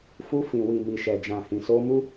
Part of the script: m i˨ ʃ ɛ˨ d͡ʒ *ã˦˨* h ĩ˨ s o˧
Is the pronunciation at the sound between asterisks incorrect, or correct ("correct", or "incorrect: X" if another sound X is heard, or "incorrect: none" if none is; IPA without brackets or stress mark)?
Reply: incorrect: ã˨